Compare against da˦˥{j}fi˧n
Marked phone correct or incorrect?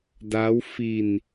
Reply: incorrect